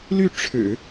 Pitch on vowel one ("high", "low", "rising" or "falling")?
falling